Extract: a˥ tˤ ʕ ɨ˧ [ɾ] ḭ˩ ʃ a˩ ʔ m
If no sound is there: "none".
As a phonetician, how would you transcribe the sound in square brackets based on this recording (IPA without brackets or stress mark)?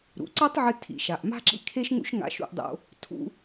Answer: tʰ